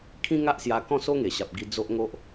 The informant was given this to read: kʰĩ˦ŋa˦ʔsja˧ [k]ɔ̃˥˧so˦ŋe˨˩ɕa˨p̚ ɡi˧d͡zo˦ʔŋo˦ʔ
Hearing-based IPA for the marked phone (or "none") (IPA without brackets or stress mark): k